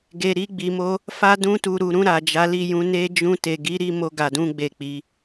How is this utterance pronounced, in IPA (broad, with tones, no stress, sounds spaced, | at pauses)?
ɡ e˨ ɾ i˧ ɡ͡b i˨ m o˧ | f a˧ d ũ˧ t u˨ ɾ u˨ ɾ ũ˧ ɾ a˨ d͡ʒ a˨˦ l i˦˨ j ũ˧ n e˧ d͡ʒ ũ˧ t e˨ ɡ i˨˦ ɾ i˦˨ m o˧ ɡ a˨ d ũ˧ ɡ͡b e˨ k͡p i˨˦